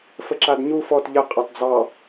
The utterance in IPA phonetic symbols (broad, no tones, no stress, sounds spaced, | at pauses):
f ə ǁ a d ɲ u f ɔ t ʎ ə qʼ ɑ t d͡z ɑ